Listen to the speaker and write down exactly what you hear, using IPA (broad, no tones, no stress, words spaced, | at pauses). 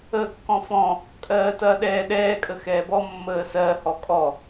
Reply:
əːkːɔ̃fɔ̃ | kʼɜːtɐːɗɛːɗɛː kʼəxɛːbɔ mːəːsɜ hɔkʼɔ